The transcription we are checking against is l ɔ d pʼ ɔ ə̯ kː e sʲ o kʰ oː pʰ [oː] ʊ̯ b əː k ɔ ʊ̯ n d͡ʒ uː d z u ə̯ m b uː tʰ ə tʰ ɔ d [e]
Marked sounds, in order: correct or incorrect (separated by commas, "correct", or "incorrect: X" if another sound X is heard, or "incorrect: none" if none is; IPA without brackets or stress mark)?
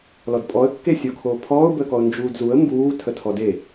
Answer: incorrect: ɔː, correct